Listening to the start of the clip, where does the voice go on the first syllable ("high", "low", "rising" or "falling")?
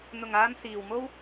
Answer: low